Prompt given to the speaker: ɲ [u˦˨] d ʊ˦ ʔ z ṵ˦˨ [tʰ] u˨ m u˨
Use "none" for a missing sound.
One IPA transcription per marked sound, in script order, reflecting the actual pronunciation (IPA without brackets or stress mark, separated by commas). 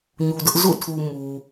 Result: u˨, tʰ